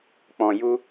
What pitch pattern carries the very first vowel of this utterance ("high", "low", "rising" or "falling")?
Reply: low